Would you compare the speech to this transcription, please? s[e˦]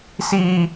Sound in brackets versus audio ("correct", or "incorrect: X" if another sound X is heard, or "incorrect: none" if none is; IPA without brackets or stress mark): incorrect: i˦